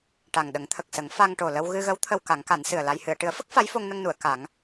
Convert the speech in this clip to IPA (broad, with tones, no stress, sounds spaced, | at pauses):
ʈ a˨˩ ŋ ɗ ə˨˩˦ ŋ t̪ʰ ə˨˩ k̚ s ə˨˩˦ ŋ f a˧ ŋ ʈ o˨˩ l ə˧ w ɣ ɨ˧ ɣ ə˧˥ w t̪ʰ ə˧ w k a˨˩˦ ŋ k a˨˩˦ n s ɨ˨˩ ə̯ l a˧ j h ɨ˨˩˨ ə̯ ʈ ɨ˨˩˦ ə̯ f ə˦˥ k̚ f a˧˥ j f o˧ ŋ n ə˧ ŋ n u˨˩˨ ə̯ k a˨˩˦ ŋ